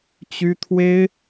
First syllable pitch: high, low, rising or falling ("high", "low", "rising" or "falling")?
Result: high